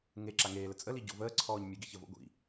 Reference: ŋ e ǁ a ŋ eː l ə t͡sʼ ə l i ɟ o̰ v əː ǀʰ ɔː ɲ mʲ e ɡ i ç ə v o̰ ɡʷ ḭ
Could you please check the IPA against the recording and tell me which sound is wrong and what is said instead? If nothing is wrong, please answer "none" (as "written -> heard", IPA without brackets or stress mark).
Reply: none